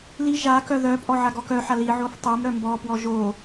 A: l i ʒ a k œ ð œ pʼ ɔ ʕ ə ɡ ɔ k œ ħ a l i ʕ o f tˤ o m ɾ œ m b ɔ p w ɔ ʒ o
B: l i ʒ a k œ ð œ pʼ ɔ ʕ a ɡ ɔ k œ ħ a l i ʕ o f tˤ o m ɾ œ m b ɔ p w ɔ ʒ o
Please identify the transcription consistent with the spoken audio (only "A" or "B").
B